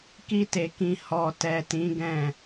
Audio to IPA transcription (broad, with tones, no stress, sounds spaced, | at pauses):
k i˦ t e˧ k ĩ˧ h ɔ˨ t ɛ˨ t ĩ˨˦ ɡ ɛ̃˦˨